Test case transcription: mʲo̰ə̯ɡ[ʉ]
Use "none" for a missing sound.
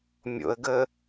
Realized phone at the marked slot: ə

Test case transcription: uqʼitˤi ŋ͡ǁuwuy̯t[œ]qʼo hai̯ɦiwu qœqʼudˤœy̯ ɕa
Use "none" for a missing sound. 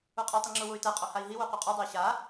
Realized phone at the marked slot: ɛ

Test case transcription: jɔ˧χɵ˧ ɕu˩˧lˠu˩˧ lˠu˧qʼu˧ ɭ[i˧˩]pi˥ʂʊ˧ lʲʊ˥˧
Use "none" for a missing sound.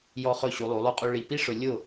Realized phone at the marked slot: i˧˩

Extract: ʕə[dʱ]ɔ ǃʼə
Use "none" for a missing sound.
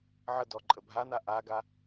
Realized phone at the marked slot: d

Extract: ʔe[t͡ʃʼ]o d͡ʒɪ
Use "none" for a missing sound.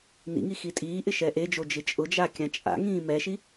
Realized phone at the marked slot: d͡ʒ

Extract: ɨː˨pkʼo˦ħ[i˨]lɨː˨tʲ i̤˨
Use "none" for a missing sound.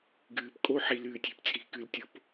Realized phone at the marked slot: i˨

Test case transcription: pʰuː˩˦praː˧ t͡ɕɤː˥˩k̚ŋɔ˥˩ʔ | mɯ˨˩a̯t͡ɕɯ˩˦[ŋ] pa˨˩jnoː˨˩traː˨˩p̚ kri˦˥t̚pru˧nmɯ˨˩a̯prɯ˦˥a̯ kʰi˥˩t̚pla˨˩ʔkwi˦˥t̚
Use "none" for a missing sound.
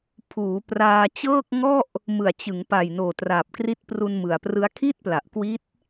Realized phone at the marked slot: ŋ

